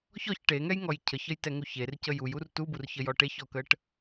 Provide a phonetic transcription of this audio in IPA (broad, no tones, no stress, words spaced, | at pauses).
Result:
çɔç ʈeŋɛjŋɔj cʰəçəjtɛŋuç ercə jujur tuburçəjɔ ʈeçɔkəʈ